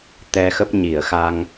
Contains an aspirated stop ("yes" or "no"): no